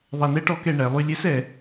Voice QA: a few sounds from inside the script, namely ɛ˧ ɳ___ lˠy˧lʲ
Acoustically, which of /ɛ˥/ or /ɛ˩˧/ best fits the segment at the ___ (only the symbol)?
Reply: ɛ˩˧